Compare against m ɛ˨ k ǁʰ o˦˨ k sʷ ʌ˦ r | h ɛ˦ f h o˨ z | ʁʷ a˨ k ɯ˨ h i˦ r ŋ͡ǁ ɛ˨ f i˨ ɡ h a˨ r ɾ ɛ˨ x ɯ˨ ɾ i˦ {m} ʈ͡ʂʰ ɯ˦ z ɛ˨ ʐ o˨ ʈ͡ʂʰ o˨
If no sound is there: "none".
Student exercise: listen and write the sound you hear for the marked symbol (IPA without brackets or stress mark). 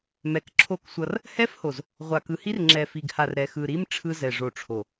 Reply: m